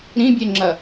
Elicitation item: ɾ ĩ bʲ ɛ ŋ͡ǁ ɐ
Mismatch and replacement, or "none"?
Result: none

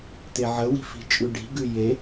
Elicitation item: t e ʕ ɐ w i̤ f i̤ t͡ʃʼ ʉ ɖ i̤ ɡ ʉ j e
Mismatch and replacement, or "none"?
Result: ɐ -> ə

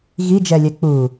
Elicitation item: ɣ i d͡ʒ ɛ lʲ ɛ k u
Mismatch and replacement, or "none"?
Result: k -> k͡p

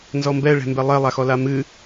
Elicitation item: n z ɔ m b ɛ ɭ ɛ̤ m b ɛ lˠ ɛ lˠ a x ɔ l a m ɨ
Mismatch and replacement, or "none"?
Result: none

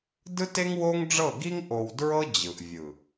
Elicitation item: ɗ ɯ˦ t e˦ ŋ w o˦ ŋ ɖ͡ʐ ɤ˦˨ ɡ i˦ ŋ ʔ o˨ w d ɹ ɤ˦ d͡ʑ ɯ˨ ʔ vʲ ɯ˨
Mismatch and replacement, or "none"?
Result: ɗ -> d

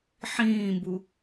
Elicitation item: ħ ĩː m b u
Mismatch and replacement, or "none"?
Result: none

